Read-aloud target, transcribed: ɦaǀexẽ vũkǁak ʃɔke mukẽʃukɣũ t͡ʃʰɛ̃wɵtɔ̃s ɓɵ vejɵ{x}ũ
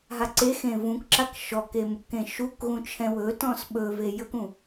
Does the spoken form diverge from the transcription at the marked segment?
yes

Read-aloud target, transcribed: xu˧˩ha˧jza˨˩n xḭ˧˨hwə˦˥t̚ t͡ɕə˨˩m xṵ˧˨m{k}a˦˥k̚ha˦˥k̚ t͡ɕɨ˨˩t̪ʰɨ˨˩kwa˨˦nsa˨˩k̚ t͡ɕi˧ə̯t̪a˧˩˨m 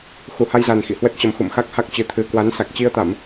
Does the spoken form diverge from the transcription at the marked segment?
yes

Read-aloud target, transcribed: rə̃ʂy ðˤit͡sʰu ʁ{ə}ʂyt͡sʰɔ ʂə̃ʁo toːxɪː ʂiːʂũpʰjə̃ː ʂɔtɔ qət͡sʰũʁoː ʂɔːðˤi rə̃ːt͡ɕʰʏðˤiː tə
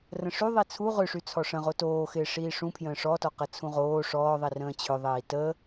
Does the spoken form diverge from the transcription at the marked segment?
yes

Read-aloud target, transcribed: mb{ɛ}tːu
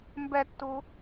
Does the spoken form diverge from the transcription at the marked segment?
no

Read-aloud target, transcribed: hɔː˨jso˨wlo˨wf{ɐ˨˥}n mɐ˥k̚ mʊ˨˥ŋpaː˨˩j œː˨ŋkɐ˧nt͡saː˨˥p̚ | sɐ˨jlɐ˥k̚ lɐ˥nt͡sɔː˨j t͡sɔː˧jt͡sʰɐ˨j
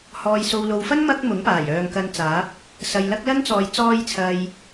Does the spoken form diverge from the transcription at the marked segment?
yes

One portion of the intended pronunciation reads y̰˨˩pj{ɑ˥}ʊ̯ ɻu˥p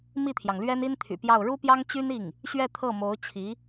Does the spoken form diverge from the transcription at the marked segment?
yes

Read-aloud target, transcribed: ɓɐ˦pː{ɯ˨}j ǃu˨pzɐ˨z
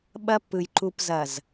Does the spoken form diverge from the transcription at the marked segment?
no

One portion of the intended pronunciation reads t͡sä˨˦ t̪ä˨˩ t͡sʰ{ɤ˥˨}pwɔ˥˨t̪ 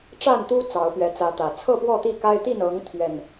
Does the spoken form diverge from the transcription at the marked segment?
no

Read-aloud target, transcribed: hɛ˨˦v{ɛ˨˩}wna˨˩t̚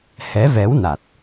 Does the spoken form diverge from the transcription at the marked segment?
yes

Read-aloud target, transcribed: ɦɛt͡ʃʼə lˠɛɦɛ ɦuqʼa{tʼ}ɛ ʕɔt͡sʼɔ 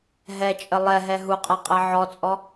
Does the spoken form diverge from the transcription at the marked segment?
yes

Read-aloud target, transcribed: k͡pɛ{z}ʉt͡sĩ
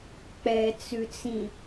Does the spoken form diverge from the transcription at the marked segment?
yes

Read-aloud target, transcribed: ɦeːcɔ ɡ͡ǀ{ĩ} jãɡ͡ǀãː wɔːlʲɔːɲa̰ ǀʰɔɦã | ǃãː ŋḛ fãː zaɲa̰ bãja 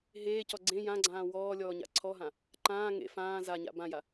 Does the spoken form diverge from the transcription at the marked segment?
yes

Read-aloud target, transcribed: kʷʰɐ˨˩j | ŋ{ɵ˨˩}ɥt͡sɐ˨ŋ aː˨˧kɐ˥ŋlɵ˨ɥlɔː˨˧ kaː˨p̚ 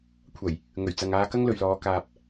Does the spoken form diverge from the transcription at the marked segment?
no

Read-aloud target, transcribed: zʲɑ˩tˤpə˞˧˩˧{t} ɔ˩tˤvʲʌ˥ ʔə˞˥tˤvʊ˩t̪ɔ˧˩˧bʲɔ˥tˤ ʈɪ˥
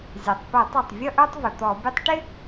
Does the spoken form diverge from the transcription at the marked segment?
yes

